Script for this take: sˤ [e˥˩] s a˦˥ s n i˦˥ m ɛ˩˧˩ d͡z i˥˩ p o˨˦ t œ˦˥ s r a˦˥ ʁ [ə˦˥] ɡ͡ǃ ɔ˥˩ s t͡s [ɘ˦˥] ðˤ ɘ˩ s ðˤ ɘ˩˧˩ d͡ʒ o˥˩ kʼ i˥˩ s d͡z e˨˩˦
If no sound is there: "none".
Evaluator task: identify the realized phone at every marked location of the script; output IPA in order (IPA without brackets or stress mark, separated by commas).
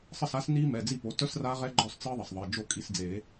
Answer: ɘ˥˩, ɛ˦˥, ɘ˦˥